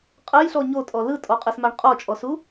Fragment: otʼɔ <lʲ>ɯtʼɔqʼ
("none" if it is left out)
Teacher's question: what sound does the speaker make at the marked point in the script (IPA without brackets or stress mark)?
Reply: l